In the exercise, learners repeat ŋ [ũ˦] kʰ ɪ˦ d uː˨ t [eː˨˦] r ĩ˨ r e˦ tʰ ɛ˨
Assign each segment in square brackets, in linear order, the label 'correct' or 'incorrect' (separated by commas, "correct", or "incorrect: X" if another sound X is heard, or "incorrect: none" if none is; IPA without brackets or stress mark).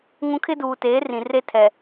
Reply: correct, correct